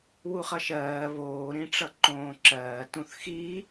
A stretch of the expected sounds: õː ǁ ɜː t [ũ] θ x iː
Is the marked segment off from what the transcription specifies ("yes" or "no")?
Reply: no